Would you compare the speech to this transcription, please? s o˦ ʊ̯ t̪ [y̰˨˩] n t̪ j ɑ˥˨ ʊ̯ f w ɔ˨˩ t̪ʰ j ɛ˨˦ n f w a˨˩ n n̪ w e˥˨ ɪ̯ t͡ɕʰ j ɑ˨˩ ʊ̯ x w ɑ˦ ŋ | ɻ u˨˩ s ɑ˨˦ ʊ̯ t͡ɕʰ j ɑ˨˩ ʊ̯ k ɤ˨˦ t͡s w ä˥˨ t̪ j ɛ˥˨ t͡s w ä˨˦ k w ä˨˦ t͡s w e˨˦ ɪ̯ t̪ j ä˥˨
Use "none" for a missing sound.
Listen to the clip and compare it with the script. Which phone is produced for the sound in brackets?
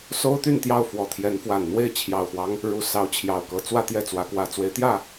y˥˨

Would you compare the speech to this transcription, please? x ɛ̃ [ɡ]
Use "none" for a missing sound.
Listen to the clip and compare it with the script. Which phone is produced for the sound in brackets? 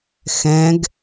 ɡ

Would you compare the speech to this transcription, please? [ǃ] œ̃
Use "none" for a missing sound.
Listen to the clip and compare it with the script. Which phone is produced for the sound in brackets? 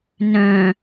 n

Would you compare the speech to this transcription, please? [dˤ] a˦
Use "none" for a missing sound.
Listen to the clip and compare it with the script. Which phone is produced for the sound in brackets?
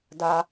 d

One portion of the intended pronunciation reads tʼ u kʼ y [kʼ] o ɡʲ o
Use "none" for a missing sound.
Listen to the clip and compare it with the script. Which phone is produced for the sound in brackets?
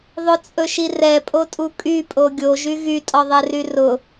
pʼ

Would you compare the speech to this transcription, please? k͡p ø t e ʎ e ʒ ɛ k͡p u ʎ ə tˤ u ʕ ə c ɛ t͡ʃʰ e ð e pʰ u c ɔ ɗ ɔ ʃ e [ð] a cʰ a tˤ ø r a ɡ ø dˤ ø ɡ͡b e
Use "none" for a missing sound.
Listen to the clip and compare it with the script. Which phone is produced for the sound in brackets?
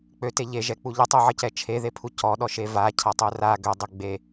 v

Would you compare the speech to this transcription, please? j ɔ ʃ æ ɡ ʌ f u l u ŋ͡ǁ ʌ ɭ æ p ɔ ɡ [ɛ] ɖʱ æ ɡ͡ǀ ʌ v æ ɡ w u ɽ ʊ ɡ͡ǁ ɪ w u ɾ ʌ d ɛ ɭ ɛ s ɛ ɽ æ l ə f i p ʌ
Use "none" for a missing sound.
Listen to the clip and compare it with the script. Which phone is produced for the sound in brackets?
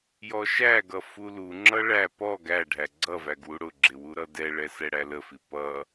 æ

